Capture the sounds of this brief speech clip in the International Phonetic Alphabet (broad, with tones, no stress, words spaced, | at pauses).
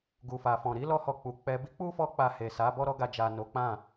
ɡu˨fa˨fɔ̃˨ ɾi˨˦lɔ˧hɔ˨ k͡pu˨ k͡pɛ˧ bi˦k͡pu˦fɔ˧k͡pa˨ he˨sa˨˦ bɔ˦ɾɔ˦ɡa˧d͡ʒa˨ no˨˦k͡pã˦˨